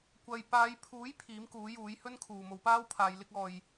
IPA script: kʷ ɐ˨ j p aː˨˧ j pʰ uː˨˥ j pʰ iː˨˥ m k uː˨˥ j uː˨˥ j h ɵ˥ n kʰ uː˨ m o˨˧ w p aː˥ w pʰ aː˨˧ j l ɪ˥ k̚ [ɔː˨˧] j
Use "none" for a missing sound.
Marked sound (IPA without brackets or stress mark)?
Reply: ɔː˧